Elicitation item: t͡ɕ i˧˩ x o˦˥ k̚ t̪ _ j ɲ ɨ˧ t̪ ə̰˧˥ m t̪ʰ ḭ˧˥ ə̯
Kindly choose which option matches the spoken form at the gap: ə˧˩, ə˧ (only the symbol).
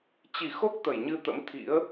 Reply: ə˧˩